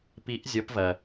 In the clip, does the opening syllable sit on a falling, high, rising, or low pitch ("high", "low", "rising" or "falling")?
rising